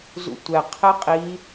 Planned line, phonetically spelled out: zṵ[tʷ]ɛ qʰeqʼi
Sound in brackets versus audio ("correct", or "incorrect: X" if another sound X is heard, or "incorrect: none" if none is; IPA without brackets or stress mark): correct